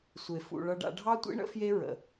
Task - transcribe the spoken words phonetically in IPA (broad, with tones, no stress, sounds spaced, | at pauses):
sʷ e˧ f ṵ˧ ɭ ʌ˦ ɖ a̰˦ ɖʱ ɑ˦ tʷ ḭ˦ ɳ ə̰˦ f j e˦ ɹ ə̰˨